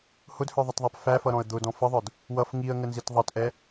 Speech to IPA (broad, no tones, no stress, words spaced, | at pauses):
hʊdhə˞ðˤətðˤæp fæfʌɾɔ̃ə̯ d̪ʊdɔ̃ fəðˤə˞d | wʌf ŋiə̯ŋənzit ðˤʌtʔɛ